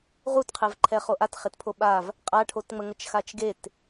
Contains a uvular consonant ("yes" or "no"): yes